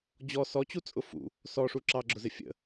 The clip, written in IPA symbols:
d͡ʑ ɔ s ɔ t͡ɕ u t͡sʼ ʊ f ṵ | s ɔ ʂ u ǁ ɑ ɡ͡ǁ ʊ z ɪ fʲ ə̰

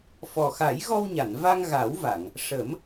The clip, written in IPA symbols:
f ɔ˨˩ x a˨˩˦ j ɣ ɔ˧ w ɲ a˨˩˨ n v a˧ ŋ ɣ a˨˩˦ w v a˨˩˨ ŋ | ʂ ə˨˩˦ m

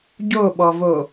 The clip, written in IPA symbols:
ɟ o ɓ ɔ v o

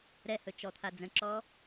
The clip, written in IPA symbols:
ɾ ɛ h ɵ t͡ʃ ɔ t̪ʰ a d͡z ə̃ ǁ ɔ

